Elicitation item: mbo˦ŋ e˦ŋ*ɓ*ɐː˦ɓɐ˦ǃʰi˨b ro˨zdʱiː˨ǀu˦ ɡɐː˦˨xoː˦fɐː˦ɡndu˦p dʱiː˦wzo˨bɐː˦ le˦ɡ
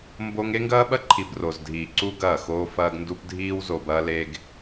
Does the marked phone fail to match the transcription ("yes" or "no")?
yes